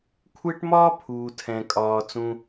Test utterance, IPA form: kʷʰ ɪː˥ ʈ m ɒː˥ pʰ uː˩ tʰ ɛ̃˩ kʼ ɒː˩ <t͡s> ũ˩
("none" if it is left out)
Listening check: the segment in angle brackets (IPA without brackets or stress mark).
t͡s